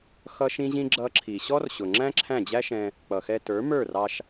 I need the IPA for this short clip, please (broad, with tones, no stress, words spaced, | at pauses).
xʌ˦ʃĩ˦ʑĩ˦ ɡ͡ǁʌ˧ǁʰi˨ɕɔ˦r ɕʊ˨ŋ͡ǁæ̃˦ ǁʰæ̃˦˨d͡ʑæ˦ʃɛ̃˧ | k͡pʌ˨xɛ˧ tə˞˨˦mə˞˦˨rɑ˧ʃ